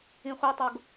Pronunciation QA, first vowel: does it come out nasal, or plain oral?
nasal